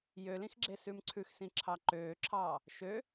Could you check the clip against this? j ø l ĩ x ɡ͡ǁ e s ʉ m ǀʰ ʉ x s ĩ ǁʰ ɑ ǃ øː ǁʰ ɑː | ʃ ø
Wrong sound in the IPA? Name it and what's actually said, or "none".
none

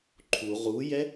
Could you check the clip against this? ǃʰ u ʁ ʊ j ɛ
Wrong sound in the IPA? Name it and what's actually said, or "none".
ʊ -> u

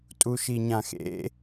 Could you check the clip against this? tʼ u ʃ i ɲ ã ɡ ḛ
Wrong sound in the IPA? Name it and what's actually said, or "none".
ɡ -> x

